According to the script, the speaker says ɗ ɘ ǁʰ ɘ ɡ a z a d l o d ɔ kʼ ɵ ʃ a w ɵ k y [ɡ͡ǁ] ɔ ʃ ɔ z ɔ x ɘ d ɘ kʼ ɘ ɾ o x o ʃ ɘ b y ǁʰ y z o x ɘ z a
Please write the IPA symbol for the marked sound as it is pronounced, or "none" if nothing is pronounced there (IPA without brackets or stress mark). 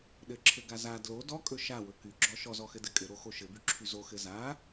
ɡ͡ǁ